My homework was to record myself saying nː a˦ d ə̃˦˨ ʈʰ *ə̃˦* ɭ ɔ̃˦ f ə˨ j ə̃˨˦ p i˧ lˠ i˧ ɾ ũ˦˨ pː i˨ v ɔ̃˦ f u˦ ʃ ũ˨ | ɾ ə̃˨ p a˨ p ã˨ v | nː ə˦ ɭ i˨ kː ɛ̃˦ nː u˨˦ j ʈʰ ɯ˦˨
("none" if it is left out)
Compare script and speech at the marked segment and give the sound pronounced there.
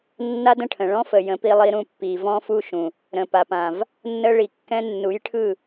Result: ə̃˨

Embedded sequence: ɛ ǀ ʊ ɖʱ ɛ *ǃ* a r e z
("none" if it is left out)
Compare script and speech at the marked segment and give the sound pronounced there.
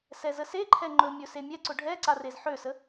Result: ǀ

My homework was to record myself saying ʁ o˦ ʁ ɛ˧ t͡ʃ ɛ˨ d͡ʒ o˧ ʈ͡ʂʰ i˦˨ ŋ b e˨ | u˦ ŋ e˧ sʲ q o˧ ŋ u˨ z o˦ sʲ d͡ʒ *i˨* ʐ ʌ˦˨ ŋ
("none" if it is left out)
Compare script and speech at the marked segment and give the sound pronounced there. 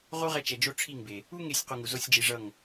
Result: i˧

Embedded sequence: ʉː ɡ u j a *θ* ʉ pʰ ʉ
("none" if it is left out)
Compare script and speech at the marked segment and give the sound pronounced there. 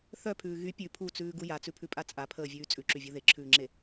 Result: t͡s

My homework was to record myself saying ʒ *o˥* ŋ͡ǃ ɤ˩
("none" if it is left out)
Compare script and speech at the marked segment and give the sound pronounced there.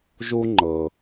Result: u˥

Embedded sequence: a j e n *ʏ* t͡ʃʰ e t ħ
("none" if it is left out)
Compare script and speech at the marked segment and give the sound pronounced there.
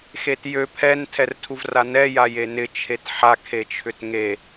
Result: ɪ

